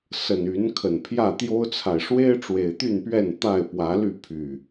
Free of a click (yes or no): yes